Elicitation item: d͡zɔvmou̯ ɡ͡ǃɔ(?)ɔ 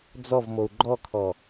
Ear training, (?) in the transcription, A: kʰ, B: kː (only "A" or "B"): A